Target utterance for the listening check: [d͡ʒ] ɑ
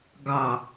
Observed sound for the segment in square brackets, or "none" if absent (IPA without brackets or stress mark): ɡ